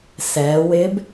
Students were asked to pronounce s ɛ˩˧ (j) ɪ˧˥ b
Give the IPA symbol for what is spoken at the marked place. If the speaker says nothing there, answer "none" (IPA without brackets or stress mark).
w